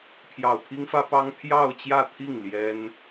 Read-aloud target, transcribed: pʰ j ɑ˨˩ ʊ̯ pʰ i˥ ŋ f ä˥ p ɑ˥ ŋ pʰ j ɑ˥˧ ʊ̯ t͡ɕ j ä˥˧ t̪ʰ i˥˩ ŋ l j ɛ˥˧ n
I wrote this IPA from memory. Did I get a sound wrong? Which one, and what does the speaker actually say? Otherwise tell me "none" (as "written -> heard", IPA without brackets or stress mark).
ɛ˥˧ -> ɛ˥